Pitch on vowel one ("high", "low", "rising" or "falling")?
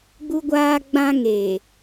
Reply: high